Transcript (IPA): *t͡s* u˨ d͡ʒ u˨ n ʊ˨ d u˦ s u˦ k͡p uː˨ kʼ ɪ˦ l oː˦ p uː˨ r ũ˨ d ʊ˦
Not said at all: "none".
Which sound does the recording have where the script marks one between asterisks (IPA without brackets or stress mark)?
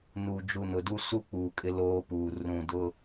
n